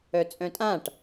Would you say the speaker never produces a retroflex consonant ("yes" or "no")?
no